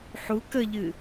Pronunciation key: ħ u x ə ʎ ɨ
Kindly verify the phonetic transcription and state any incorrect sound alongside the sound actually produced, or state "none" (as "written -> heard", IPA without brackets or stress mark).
x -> k